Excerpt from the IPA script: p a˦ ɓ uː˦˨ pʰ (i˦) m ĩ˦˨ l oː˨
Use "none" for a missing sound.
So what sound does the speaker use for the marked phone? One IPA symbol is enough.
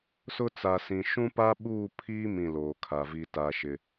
iː˦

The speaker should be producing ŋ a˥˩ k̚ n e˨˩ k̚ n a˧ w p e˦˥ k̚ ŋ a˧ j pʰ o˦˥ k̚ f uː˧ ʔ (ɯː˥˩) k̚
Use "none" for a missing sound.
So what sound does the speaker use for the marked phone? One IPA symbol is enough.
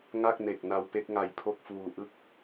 ɯ˥˩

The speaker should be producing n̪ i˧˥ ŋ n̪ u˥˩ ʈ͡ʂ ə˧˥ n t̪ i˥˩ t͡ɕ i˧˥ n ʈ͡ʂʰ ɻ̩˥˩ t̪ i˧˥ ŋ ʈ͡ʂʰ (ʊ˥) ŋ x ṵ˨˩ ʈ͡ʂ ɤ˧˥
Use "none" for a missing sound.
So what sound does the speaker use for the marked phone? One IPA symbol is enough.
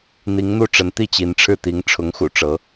ʊ˧˥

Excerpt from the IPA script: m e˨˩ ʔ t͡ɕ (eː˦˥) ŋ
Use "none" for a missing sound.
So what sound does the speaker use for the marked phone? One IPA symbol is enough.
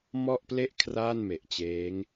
eː˦˥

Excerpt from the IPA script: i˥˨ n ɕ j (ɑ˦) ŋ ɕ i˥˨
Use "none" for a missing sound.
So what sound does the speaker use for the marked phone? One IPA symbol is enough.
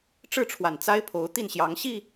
ɑ˨˦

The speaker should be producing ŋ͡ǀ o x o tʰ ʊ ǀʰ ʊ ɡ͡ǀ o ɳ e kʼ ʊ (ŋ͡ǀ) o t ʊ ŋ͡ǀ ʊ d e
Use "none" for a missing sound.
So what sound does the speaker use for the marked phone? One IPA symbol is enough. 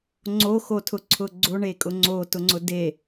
ŋ͡ǀ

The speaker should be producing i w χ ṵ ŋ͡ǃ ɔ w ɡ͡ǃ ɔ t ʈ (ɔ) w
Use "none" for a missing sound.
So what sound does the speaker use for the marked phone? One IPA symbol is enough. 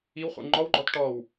ɔ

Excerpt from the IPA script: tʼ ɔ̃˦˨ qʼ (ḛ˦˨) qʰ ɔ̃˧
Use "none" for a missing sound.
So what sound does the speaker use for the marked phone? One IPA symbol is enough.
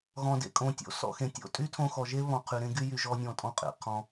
ḛ˨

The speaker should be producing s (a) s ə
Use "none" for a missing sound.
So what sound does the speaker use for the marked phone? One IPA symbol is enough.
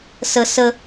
ə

